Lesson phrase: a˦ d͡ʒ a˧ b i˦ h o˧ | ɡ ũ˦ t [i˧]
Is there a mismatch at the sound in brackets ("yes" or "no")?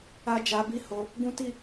yes